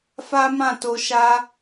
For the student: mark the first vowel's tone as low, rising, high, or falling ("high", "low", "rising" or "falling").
high